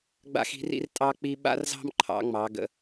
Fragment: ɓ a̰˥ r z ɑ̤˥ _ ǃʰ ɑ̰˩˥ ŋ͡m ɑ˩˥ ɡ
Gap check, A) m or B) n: A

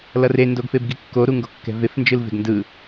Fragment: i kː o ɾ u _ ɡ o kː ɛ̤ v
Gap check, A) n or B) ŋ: B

